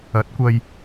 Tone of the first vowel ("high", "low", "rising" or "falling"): rising